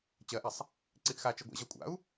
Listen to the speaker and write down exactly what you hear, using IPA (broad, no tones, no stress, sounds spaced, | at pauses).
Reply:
t͡ɕ ɜ ʔ a sˤ | ǀ i ʔ x a t͡ʃ ɜ ɡʷ ɛ̰ ʑ ɜ kʷʼ a̰ u̯